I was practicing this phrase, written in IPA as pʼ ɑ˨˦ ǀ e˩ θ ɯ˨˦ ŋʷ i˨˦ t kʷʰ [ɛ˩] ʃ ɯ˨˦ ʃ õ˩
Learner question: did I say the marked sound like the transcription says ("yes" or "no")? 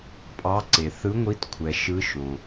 yes